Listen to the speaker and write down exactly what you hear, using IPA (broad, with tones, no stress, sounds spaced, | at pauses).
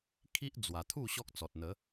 kʰ i˦ ʔ d͡z w a˨˩ t̪ʰ u˥˧ ɕ ɔ˦ k̚ t͡s ɔ˨ t̚ n̪ ə˨˦